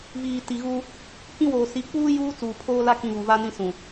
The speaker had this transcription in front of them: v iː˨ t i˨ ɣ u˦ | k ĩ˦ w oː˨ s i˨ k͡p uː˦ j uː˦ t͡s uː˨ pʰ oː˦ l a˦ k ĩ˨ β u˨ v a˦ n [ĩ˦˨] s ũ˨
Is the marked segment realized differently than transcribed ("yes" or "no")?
yes